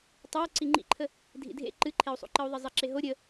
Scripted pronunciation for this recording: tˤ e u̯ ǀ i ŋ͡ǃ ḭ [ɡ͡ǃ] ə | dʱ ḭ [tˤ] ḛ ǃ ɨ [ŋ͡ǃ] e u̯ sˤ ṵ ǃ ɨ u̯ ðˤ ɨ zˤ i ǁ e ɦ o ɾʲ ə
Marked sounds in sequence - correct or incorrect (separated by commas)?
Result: incorrect, incorrect, incorrect